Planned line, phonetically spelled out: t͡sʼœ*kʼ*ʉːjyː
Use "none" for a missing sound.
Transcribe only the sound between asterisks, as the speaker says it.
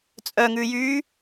ŋ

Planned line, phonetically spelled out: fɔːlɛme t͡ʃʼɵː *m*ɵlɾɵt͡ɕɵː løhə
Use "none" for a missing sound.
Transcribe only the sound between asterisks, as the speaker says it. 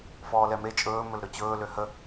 m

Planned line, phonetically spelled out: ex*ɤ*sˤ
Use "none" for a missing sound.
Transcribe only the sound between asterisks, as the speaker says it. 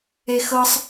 ɤ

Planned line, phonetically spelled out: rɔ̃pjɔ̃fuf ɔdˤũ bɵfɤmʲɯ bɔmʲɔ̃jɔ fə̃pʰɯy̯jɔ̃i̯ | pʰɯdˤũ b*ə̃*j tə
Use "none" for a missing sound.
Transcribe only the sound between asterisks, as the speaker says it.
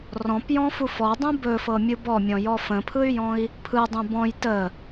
ɔ̃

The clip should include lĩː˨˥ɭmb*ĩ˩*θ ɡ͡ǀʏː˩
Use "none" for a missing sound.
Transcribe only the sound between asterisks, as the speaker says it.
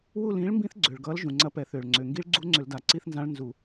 ĩ˦˥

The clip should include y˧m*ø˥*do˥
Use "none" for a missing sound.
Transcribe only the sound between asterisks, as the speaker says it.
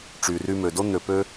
ø˩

